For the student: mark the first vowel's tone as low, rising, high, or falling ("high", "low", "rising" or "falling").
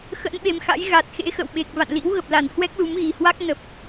rising